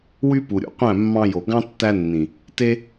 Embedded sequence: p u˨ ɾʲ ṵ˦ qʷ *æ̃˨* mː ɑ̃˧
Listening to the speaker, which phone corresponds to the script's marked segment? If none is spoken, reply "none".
æ̃˦˨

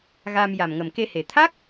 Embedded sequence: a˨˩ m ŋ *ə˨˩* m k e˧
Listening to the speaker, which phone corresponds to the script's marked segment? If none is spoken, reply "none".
ə˨˩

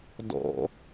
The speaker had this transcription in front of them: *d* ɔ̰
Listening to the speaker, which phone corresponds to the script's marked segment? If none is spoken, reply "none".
d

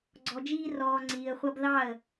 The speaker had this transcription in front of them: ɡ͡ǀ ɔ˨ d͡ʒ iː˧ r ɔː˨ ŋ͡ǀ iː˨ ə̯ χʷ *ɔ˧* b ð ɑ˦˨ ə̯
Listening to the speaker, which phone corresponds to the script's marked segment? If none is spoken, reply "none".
ʌ˧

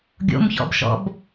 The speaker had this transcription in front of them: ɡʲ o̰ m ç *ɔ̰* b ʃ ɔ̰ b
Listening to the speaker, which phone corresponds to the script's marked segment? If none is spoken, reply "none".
ɔ̰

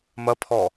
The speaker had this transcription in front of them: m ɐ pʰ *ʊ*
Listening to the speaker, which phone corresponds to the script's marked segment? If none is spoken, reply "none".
ɔ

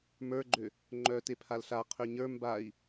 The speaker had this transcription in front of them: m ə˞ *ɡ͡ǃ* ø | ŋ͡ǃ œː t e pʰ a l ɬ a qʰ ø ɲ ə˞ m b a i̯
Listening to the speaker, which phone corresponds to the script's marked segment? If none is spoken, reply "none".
ɡ͡ǃ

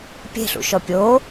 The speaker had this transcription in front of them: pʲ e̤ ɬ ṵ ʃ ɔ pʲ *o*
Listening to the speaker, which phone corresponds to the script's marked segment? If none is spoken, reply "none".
o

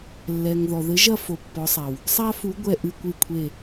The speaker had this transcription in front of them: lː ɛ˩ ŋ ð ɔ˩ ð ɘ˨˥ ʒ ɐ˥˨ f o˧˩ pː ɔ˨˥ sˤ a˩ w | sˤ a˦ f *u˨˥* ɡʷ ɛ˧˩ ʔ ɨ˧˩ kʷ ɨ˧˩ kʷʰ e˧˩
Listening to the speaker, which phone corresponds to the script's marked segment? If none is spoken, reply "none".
u˨˥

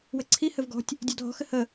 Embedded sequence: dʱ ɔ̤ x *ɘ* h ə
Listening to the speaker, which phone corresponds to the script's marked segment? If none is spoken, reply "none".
ɘ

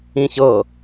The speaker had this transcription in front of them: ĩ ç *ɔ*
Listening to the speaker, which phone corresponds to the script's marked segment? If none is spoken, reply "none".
ɤ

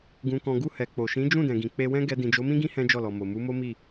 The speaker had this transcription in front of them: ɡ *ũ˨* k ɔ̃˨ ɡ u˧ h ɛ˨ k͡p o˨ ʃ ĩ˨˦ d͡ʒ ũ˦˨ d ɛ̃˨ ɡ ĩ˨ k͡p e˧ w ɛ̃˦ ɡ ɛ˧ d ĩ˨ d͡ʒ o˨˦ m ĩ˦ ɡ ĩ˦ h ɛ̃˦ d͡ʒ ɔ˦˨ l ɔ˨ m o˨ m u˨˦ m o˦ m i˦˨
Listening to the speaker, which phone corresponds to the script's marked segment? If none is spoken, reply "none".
ũ˨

